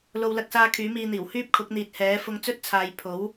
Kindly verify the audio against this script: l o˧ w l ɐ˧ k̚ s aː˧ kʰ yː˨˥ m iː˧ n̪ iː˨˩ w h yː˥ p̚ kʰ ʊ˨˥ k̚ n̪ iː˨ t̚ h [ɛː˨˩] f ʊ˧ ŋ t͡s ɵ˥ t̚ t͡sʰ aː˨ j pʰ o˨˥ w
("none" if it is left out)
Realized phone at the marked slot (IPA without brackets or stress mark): ɛː˨˥